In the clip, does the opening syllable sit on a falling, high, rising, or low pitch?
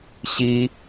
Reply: high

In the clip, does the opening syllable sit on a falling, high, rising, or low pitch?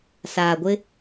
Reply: low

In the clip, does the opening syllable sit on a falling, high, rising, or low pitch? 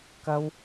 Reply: high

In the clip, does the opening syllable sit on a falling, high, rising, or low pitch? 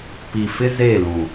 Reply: low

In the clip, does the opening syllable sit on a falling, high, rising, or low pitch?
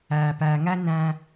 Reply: low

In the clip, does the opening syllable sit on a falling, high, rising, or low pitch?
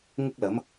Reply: high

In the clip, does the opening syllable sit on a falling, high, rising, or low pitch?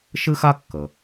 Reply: high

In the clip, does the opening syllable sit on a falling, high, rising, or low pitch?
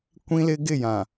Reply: high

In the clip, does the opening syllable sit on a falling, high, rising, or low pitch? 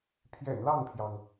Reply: low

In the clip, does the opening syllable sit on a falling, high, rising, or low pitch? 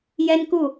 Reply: high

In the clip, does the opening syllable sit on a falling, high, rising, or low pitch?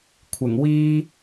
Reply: low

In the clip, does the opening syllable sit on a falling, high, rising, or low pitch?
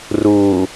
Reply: low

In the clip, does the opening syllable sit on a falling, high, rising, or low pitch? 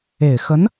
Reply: low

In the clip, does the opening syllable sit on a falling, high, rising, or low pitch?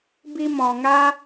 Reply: high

